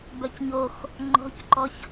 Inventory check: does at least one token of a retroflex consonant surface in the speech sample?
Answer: no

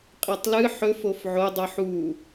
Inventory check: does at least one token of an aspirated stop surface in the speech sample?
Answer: no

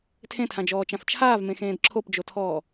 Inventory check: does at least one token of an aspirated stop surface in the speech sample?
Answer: yes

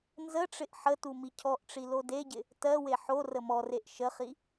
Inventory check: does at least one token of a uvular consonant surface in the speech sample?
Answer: yes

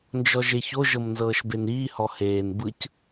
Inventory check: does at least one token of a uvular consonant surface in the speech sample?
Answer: no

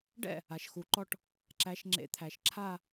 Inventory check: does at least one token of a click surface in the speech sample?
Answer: yes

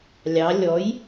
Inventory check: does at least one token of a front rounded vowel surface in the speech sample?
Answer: no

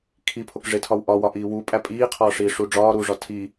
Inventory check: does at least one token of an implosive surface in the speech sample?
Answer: no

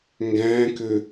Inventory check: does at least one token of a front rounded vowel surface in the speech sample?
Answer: yes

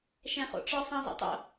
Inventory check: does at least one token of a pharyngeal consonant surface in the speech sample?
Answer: no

